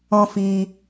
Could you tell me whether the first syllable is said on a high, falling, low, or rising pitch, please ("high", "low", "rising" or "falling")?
high